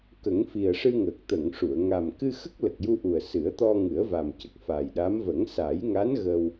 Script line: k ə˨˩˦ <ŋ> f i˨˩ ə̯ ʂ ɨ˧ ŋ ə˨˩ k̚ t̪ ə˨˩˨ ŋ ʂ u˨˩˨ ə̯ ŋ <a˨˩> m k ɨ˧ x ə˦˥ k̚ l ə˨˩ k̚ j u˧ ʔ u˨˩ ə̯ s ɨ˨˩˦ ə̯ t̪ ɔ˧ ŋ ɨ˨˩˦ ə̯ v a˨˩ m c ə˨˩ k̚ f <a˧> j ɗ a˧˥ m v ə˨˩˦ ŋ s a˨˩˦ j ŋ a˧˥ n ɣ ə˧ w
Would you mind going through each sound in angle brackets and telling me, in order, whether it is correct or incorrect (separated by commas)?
correct, correct, incorrect